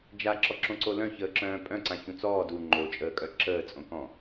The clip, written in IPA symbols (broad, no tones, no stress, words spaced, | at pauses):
d͡ʒaǁɔǁõǀo lœ̃çəːǁœ̃ː pʼœ̃ǀãçũ t͡sɔː du ŋ͡ǃot͡ʃʼəːkʼœ ǁəːt͡sʼõkɔ̃